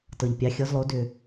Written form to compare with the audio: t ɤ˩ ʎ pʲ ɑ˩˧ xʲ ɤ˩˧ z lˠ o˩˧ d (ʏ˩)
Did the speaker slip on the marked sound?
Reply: no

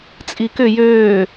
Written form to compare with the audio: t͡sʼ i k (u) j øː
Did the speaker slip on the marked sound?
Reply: yes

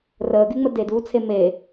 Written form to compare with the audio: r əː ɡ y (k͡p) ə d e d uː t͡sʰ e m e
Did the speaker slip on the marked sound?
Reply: yes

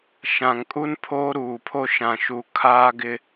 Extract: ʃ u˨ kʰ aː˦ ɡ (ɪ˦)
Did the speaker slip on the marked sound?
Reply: no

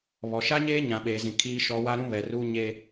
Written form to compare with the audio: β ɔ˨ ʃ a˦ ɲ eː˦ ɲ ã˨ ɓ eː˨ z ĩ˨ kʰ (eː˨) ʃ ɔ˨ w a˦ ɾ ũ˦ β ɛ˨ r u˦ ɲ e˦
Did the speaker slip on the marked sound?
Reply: yes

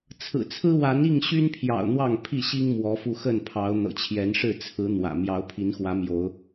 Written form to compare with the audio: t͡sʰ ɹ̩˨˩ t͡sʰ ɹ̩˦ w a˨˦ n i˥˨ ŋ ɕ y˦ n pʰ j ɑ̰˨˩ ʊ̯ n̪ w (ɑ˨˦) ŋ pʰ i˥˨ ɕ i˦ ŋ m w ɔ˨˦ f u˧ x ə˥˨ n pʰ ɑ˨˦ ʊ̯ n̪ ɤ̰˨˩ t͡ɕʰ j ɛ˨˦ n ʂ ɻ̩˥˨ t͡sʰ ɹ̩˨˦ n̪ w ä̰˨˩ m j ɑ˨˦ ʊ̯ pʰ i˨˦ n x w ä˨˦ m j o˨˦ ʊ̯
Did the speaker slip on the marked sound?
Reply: yes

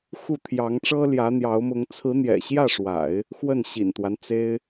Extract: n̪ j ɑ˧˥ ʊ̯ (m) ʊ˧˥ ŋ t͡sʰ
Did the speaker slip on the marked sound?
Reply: no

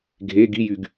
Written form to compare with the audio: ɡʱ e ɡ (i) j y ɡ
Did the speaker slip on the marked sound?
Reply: no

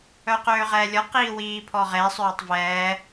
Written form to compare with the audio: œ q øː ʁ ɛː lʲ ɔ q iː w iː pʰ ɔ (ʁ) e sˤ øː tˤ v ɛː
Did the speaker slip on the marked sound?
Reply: no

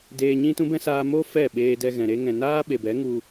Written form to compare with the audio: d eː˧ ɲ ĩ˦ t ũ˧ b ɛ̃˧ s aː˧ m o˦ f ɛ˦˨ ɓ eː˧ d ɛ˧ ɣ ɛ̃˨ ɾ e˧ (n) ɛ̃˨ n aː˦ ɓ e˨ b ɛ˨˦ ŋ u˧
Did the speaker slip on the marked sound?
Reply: yes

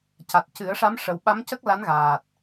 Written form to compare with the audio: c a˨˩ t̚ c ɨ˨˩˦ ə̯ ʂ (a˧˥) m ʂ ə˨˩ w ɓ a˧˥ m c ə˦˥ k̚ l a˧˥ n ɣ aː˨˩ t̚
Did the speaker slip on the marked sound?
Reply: no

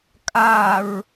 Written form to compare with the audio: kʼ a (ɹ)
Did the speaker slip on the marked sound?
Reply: no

